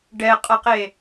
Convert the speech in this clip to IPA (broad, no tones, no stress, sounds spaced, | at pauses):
ɖ ɛ qʼ ʌ q e